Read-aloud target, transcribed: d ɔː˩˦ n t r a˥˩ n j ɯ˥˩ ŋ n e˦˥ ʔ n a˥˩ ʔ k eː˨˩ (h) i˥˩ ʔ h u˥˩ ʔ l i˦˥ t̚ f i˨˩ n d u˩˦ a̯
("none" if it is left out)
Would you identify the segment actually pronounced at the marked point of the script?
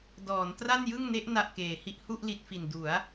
h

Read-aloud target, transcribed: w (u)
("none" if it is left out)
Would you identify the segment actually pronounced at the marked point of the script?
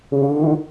u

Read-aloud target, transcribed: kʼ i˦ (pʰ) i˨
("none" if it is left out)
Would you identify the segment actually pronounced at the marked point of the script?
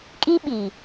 ɓ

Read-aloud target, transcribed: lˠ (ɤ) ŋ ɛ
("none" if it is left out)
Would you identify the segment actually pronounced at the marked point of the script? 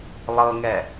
ɤ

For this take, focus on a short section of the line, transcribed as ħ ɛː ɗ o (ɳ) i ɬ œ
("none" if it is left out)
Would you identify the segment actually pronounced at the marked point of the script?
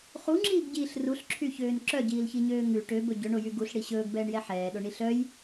ɳ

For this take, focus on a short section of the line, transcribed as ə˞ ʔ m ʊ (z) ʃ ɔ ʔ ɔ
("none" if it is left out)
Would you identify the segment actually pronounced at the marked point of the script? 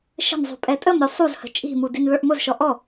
z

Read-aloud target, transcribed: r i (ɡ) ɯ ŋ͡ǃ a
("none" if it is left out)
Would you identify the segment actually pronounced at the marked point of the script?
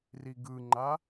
ɡ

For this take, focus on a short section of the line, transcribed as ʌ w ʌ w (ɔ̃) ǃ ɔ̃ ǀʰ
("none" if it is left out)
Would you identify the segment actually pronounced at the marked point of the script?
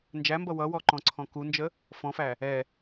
ɔ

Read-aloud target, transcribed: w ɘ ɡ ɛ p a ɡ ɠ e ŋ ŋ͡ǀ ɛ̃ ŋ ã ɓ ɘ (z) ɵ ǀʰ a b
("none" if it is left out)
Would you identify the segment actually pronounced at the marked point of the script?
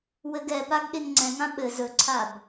z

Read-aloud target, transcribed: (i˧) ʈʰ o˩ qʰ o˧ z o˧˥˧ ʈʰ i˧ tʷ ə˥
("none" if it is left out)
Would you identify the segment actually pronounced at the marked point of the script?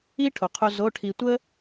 i˥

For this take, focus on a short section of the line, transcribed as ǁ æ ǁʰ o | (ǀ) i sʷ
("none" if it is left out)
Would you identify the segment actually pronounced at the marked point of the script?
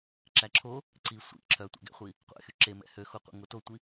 ǀ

